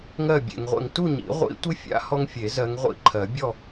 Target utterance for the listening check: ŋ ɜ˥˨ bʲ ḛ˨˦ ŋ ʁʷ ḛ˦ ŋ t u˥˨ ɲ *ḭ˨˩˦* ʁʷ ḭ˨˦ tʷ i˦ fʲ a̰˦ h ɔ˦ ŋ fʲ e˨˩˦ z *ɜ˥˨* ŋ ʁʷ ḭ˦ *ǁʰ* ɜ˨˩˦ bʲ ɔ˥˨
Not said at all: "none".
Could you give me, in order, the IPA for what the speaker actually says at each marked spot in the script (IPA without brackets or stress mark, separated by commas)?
ḭ˨˩˦, ɜ˨˦, ǃʰ